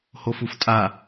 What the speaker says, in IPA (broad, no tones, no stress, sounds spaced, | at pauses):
h o f u f tʼ a